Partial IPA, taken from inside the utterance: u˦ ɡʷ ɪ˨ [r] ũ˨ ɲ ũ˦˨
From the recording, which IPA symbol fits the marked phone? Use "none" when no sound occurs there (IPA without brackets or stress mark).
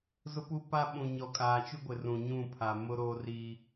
r